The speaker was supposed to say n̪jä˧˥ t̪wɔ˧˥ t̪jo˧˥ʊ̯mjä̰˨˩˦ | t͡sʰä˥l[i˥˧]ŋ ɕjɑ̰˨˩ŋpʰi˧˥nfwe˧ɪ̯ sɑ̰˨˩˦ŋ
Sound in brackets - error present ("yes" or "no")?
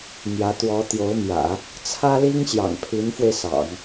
yes